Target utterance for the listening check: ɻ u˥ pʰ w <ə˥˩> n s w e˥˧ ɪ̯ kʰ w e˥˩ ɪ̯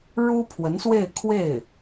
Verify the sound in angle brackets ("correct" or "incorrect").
incorrect